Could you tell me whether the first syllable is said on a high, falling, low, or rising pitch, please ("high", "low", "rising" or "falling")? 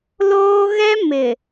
high